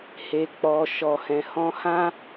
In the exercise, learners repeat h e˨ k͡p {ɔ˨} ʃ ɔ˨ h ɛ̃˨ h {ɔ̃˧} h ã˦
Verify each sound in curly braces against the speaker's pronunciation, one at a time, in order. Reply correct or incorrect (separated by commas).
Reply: correct, correct